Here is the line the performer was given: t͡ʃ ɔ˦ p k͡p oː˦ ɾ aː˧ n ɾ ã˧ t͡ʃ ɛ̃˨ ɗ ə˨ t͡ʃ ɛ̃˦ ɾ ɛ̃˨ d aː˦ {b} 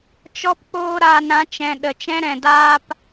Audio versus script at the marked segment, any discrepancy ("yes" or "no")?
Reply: yes